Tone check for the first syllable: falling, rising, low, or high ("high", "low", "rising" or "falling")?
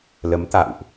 rising